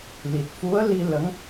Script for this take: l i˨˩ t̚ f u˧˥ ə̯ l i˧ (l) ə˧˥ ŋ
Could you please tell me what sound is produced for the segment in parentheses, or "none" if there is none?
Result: l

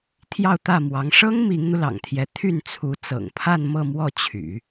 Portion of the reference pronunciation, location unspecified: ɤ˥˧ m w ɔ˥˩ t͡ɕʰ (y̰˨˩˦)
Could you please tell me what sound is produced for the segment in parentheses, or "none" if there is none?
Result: y̰˨˩˦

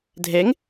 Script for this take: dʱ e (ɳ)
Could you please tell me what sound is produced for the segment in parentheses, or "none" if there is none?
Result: ŋ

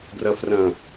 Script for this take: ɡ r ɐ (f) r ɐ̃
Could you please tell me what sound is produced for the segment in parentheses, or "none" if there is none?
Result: f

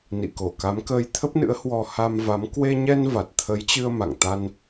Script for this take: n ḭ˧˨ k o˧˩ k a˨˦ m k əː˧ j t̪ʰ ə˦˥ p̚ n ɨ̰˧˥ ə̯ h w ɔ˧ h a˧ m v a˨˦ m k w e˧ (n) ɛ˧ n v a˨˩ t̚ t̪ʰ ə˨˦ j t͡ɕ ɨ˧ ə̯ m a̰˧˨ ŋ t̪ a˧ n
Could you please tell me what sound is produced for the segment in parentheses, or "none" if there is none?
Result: ɲ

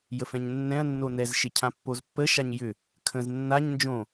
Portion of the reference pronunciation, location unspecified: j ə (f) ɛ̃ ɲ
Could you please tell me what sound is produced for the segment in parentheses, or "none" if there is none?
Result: f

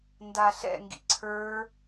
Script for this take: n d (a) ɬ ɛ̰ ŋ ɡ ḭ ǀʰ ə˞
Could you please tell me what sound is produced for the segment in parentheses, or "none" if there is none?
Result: a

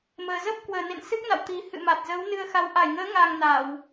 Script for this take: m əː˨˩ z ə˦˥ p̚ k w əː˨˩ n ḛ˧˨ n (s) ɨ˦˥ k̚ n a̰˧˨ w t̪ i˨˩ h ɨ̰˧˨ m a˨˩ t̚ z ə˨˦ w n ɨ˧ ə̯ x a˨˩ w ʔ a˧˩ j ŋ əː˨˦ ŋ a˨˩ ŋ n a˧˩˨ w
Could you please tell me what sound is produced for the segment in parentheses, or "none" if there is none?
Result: s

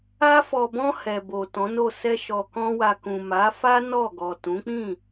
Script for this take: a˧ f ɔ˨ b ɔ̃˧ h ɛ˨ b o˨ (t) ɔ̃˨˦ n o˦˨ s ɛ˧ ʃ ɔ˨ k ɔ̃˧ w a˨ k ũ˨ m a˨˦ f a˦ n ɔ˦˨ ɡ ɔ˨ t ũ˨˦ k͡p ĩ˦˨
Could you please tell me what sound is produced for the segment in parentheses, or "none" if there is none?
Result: t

